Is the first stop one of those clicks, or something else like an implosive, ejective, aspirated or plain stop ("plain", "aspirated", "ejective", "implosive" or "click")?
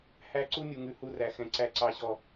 click